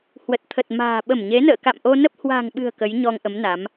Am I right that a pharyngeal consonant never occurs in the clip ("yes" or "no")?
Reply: yes